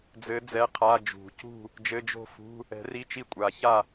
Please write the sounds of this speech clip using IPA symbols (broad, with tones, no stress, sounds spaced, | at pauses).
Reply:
d͡z ɘ˨˦ d͡z ɛ˧˥˧ qʰ a˧˥˧ d͡ʒ ṳ˨˩˦ c ṳ˥˨ | d͡ʒ ɘ˧˥˧ d͡ʒ o̤˥˨ f ṳ˧˥˧ | ɛ̤˨˩˦ r i˧˥˧ t͡ʃ i˥˨ kʷʼ a˨˩˦ ç a˥˨